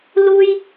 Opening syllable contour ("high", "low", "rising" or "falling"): high